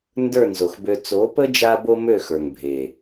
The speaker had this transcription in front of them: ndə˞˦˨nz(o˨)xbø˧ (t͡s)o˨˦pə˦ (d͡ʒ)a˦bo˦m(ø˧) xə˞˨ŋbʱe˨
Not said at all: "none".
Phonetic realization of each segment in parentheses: o˨, t͡s, d͡ʒ, ø˦˨

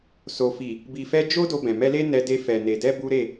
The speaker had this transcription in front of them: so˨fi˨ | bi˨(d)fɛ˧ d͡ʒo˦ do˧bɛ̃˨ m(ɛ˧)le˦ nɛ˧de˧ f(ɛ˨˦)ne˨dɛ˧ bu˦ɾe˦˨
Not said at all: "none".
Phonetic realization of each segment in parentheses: none, ɛ˧, ɛ˨

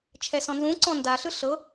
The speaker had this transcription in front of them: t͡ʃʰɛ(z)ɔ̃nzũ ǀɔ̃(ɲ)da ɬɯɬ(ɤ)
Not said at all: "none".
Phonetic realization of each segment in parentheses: s, n, ɤ

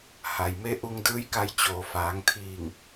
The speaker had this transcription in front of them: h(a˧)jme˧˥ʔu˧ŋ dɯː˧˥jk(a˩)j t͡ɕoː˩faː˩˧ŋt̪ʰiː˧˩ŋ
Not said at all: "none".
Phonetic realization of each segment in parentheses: a˩, a˧

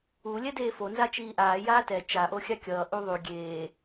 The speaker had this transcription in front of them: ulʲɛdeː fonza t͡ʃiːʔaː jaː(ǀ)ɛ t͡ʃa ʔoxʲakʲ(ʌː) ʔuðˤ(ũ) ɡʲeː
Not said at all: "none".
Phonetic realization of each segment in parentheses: t, ʌː, u

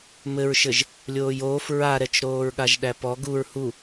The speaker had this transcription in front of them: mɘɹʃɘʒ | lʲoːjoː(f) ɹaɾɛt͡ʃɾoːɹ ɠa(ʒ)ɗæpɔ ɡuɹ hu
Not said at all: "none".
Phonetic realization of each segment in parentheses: f, ʒ

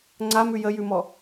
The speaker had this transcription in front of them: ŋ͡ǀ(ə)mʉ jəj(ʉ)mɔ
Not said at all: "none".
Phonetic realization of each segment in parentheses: a, ʉ

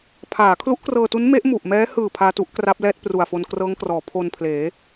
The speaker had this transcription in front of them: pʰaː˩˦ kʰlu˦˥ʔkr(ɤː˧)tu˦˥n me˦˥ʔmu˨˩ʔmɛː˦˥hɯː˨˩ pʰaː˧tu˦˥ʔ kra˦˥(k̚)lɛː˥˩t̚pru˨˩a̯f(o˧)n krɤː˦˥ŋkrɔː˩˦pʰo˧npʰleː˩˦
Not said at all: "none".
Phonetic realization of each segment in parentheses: ɤː˧, p̚, o˧

